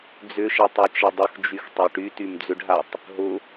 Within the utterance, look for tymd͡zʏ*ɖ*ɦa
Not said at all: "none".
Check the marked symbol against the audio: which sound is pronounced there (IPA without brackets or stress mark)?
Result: ɖ